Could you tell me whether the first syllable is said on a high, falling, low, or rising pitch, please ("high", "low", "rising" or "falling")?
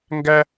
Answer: high